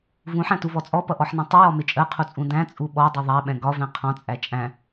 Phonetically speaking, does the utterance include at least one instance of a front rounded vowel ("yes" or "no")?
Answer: no